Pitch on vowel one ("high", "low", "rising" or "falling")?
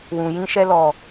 low